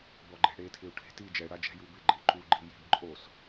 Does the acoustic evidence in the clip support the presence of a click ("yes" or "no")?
yes